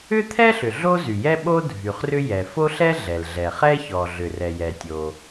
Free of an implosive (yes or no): no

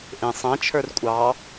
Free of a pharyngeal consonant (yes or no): yes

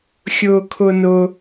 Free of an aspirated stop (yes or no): no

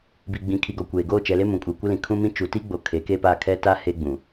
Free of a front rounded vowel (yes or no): yes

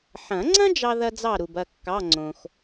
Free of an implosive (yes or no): yes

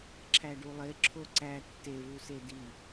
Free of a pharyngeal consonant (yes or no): yes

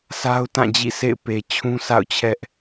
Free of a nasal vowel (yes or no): no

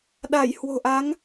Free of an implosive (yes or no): no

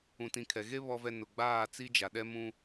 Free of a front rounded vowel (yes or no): yes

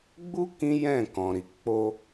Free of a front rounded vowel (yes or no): yes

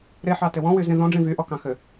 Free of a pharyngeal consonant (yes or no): no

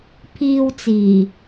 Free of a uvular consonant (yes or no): yes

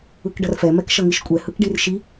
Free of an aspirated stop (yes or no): yes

